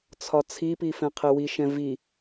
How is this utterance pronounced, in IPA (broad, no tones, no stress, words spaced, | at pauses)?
t͡sʰɒt͡sʰipi fɛ̃qʰewiʃɛ̃ vi